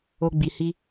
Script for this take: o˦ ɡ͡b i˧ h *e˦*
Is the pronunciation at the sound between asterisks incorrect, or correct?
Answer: incorrect